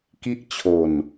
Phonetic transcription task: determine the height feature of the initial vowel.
high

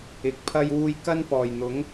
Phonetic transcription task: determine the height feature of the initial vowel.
high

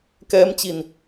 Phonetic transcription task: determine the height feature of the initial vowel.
mid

